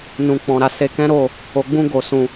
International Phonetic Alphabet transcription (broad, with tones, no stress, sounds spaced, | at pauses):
n ũ˨ k͡p ɔ̃˨ ɾ a˨ s e˧ k ɛ̃˦ ɾ o˦˨ | o˧ ɡ͡b ũ˦ ɡ o˧ s ũ˧